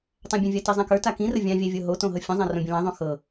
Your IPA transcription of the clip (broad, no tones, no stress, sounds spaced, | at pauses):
tˤ ã bʲ ə̃ vʲ a t i zˤ ã k ə˞ t a k ĩ r ə vʲ ã vʲ æ vʲ ɤ ɦ o t õ ɦ ɤ fʲ õ zˤ ã r õ bʲ ə̃ l ã ðˤ õ x ɤ